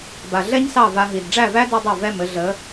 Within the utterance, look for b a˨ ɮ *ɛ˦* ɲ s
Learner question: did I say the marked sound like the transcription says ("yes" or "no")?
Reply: yes